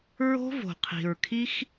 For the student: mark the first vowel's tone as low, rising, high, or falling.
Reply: high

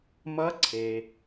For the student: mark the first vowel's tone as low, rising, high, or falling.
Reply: rising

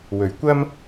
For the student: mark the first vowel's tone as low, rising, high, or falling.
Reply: low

